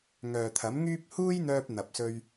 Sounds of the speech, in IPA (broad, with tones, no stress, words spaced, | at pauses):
ŋœː˨t̪ʰɐ˨˥mŋyː˥p̚ huː˥jn̪œː˧p̚ n̪ɐ˨p̚sɵ˧ɥ